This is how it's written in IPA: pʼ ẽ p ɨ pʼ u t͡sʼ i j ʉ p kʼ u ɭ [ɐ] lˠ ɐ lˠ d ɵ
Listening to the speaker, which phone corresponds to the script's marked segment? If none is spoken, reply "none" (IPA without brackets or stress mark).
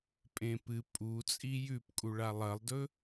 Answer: a